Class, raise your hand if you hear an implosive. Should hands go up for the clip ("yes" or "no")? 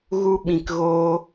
yes